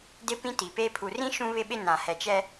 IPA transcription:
d ɪ˦ p ĩ˦ t i˨ p e˦ pʰ u˨ r ĩ˦ ʃ ũ˦ β ɪ˦ ɓ ɪ˦ n ã˨ h ɛ˨ t͡ʃ ɛ˦

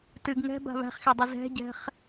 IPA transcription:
t ɨ ɡ ŋ ɛ̤ b a̤ β æ̤ χ x e dˤ i z ɛ̤ ɟ ɛ̤ χ

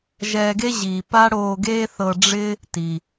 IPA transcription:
ʒ ɛː˧ ɡ e˥ ʑ iː˩ p a˥ ɽ oː˧ ɡ eː˥ θ ɤ˧ ɖ͡ʐ ɪ˥ | t i˩

